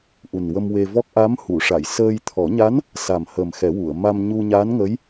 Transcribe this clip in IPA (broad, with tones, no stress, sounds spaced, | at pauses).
ʔ u˨˩ n w ə˧ m w e˧ v ɔ˦˥ k̚ ʔ a˧˥ m h u˨˩˨ ʂ a˨˩˨ j s əː˧ j t̪ʰ ɔ˨˩˦ ɲ a˧˥ n | s a˨˩ m h əː˨˩ m x ɛ˨˩˦ w u˨˩˨ ə̯ m a˧ m ɲ u˧ ɲ aː˧˥ n ŋ ə˧˥ j